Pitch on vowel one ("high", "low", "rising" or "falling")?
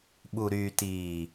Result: low